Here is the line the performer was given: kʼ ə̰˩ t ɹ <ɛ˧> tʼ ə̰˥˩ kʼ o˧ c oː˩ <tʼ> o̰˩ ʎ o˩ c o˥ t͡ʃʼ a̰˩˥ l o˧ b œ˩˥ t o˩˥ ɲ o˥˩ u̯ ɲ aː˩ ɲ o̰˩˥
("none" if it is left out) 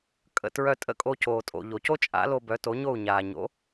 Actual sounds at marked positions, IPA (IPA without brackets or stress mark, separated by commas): œ˧, tʼ